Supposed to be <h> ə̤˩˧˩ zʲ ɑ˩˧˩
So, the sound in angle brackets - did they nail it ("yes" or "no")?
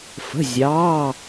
no